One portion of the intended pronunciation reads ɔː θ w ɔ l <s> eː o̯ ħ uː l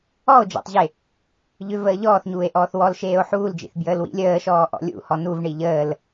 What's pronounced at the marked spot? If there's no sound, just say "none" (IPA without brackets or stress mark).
ʃ